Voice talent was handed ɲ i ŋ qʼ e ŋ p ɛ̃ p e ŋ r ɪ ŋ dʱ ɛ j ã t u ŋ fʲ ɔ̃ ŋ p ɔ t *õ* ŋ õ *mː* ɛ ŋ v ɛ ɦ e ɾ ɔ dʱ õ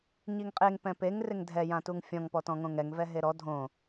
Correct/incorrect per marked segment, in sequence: incorrect: ɔ̃, incorrect: ŋ

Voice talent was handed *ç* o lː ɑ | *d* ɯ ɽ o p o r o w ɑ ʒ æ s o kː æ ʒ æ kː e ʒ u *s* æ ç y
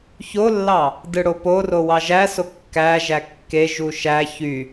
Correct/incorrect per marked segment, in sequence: correct, correct, incorrect: ʃ

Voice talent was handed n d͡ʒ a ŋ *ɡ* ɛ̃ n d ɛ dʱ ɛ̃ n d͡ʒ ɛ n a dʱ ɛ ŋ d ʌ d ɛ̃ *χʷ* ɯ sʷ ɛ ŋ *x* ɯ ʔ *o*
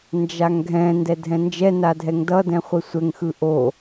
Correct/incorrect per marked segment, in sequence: incorrect: ɡʱ, correct, correct, correct

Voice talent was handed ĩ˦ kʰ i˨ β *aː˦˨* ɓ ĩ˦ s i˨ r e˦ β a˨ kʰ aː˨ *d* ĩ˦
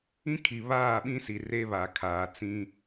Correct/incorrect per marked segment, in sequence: correct, incorrect: t͡s

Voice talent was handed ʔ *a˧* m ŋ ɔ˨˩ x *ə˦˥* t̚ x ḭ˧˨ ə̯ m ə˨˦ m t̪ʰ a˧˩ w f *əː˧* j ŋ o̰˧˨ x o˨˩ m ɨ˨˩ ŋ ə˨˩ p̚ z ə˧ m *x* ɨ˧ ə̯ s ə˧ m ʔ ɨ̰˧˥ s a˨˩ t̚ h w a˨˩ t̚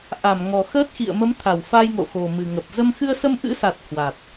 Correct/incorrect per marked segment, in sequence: incorrect: a˧˩, incorrect: əː˦˥, incorrect: aː˧, correct

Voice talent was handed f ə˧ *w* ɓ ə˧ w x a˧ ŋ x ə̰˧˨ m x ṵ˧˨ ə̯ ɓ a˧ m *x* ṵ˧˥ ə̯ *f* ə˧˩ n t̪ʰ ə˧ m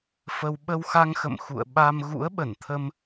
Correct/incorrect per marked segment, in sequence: correct, incorrect: ɣ, incorrect: ɓ

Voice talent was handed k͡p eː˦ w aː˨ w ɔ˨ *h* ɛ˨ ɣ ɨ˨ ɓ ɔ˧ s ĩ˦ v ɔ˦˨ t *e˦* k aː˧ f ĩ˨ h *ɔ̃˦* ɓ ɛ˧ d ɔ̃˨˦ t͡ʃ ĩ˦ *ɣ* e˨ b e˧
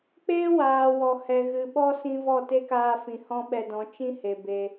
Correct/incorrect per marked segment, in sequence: correct, correct, correct, incorrect: h

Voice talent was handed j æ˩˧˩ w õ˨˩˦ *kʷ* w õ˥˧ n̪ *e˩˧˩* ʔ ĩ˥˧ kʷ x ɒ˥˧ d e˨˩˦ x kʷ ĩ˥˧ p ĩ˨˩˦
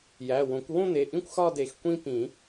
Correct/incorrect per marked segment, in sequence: correct, correct

